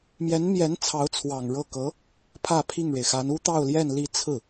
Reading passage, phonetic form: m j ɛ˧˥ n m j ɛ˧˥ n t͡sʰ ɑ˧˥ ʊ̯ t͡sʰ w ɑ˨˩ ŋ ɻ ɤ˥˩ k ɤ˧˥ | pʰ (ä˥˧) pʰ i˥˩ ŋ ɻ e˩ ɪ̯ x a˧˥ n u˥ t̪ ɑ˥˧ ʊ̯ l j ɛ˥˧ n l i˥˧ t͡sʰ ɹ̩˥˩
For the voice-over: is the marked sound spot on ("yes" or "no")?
yes